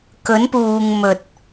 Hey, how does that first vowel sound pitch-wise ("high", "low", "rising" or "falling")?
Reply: rising